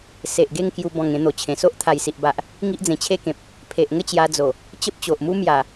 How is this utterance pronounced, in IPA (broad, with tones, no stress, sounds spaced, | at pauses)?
s e˨ ʔ ɡ e˥˧ ŋ k j u˧ b ɔ̃˨˩ ŋ ẽ˧ n̪ o˨˩ t͡ɕʰ ẽ˨˩ s o˦ ʔ t̪ʰ a˨˩ j s i˨ ʔ b a˨ ʔ | ŋ i˦ ʔ d͡z ẽ˨˩ t͡ɕʰ e˥˧ k ẽ˨ p̚ | pʰ e˨ ʔ ŋ ə˥˧ t͡ɕ j a˧ d͡z o˨˩ | t͡ɕ ə˦ p̚ t͡ɕ o˨ ʔ m u˦ m j a˨˩